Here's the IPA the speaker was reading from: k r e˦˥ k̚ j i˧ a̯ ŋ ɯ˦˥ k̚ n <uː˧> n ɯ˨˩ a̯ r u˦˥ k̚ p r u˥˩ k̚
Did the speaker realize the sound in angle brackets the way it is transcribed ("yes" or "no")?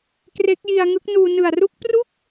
yes